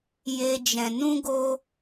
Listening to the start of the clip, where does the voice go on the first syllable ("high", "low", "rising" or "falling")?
high